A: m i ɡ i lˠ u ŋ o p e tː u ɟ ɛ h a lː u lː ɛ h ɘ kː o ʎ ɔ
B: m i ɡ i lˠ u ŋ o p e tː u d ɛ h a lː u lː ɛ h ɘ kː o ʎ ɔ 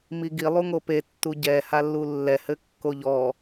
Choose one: A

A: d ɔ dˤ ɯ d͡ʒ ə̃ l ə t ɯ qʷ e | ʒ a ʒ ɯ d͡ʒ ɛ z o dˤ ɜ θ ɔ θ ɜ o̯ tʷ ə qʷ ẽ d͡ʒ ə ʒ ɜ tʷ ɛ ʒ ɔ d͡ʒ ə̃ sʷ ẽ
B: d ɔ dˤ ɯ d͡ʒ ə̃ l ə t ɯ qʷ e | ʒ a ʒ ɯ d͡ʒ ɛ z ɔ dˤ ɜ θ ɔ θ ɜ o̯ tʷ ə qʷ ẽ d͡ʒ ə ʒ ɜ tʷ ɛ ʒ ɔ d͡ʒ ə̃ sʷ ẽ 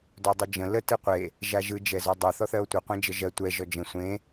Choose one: B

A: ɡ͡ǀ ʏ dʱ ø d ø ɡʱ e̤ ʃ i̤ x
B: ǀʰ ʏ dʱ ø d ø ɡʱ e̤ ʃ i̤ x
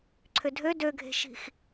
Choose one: B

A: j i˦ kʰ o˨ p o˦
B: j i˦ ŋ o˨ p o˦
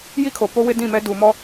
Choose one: A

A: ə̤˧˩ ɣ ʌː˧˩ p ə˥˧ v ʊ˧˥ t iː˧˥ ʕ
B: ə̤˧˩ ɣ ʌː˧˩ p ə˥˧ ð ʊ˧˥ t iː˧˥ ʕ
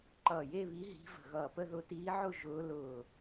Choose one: B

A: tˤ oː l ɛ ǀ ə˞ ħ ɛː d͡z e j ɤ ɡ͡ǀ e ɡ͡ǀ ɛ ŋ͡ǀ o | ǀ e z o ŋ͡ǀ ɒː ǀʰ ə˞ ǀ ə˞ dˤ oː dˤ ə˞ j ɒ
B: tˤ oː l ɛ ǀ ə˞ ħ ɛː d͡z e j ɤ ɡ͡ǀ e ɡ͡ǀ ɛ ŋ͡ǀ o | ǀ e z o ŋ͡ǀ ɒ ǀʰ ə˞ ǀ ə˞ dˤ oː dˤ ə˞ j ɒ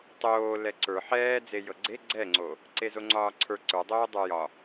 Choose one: A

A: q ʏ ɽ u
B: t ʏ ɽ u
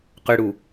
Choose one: A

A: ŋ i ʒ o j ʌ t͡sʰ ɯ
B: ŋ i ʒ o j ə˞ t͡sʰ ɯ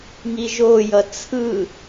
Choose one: A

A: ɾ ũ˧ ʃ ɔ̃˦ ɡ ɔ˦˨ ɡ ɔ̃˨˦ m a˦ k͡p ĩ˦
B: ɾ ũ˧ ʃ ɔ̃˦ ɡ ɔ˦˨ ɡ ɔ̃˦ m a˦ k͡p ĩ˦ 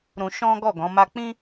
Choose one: A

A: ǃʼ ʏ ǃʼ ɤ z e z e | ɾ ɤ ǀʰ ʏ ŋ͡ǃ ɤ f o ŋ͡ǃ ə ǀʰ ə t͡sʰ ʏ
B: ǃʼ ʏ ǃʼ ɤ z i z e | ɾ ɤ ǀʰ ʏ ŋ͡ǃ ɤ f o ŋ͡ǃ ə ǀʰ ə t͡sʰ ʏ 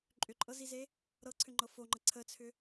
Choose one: B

